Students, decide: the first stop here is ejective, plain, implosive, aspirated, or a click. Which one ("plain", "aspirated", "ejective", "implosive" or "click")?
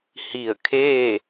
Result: aspirated